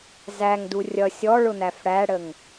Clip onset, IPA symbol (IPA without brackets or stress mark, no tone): z